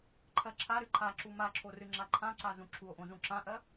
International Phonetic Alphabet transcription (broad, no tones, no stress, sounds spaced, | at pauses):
ǃʰ ɜ ǁʰ a ɾ ɨ ǃʰ a ǁ u m a ǁʰ o r ɨ ŋ͡ǁ a ǃʰ ã ǀ a z ũ ǁʰ u o̯ ʔ õ z ũ ǁ ã ʔ ɜ